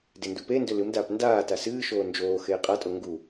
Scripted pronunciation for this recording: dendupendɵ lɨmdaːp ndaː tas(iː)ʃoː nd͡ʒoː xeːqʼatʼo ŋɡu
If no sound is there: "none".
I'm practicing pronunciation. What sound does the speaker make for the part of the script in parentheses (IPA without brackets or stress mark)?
ɨː